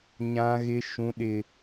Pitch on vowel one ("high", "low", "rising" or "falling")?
high